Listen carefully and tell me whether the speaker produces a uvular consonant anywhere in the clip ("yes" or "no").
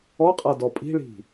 yes